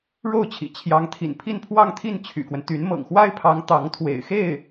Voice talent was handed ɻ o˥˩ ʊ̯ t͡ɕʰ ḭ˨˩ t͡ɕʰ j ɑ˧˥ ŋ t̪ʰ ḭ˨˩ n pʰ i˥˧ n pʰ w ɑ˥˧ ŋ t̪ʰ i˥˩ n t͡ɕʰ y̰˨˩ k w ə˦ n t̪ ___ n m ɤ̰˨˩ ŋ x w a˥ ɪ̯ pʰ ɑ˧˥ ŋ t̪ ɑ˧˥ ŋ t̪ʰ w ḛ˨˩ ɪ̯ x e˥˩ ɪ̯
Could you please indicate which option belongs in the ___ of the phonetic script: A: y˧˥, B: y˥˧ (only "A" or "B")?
A